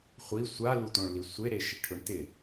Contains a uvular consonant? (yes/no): yes